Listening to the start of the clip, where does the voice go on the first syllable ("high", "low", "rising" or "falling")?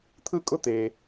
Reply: high